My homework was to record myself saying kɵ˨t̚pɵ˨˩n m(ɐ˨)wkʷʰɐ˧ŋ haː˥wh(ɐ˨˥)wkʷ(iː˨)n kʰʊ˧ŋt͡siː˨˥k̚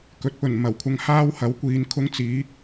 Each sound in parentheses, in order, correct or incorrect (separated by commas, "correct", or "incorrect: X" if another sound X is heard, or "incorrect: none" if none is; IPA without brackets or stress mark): incorrect: ɐ˨˩, correct, incorrect: iː˨˧